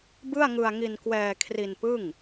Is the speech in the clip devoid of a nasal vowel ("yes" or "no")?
yes